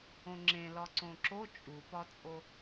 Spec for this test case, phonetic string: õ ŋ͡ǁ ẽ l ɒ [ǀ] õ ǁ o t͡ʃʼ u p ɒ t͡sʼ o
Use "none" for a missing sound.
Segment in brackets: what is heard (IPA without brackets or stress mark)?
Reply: ǀ